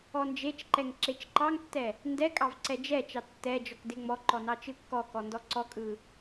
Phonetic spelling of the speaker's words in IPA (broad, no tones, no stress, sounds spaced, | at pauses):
ɔ n d͡ʒ e t͡ʃ ǃ ɛ ŋ ǁ e t͡ʃ ǃ ɑ ŋ tː ɛ | n d ɛ kʼ ɑ v ǀ ɛ d͡ʒ ɛ t͡ʃ ɑ tː ɛ d͡ʒ ɔ k d e ŋ͡m ɔ ǃ ɔ n ɑ t͡ʃ ɯ kː ɔ k ɔ n d ɔ ǀ ɔ kʼ ɯ